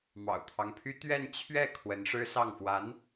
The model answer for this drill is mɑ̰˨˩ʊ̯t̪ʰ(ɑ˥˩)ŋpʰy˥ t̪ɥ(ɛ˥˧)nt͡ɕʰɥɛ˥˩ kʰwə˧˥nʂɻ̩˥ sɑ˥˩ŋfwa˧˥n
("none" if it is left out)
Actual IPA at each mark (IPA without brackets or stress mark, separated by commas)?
ɑ˦, ɛ˥˧